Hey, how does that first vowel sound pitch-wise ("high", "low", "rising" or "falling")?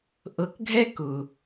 low